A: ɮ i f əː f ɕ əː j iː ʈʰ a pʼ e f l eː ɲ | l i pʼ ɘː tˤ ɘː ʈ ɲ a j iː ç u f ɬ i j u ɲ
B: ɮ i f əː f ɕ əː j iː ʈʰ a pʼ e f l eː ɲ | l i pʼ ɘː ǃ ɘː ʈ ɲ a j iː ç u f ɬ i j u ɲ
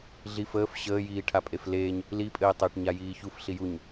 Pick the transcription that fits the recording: A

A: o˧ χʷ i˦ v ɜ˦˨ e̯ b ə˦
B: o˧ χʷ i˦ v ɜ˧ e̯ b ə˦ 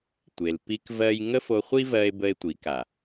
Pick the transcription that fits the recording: B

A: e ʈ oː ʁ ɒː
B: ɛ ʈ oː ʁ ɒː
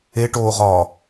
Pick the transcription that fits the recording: A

